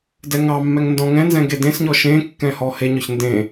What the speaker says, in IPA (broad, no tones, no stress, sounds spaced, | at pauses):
d ɛ ŋ ɑ mː ɛ ŋ n d ɔ̃ ŋ ɛ̃ n z ɛ̃ ɡ e d ẽ s ɲ ɔ ʃ ẽ kː ɛ̃ h ɔ h e ɲ ɔ ç n d ẽ